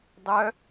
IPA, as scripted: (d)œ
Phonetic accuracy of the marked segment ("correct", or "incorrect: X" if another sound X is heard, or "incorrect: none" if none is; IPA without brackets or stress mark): incorrect: dˤ